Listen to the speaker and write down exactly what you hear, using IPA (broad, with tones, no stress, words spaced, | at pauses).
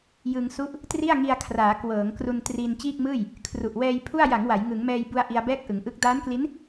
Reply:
jɯ˧ŋsu˥˩ʔ | tri˥˩a̯ŋi˧a̯kʰraː˩˦ kwɤː˩˦ŋkru˧n tri˧n t͡ɕiː˥˩k̚mɯː˥˩j | kʰru˨˩ʔ wɛː˧jpʰu˥˩a̯ ja˩˦ŋ wa˩˦j ŋɯ˩˦ŋmɛː˧jbu˧a̯ ʔi˧a̯bɛː˥˩k̚ʔɯ˩˦ŋʔɯ˦˥k̚ daː˦˥nkli˦˥n